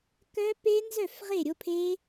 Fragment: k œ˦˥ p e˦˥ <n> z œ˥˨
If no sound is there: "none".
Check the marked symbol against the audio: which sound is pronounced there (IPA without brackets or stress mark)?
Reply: n